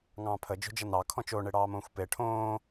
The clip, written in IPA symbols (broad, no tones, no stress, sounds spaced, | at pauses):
ŋ ɑ̃ː pʰ ə d͡ʒ o̤ d͡ʒ ʌ n ɑ kʰ ɔ̃ t͡ʃ o ɳ e ɽ ɑː m õː xʷ p e ʈʰ õː